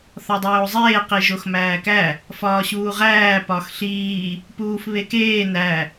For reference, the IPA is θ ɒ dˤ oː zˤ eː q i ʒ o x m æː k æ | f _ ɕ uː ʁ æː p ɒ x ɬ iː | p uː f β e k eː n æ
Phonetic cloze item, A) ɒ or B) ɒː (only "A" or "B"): B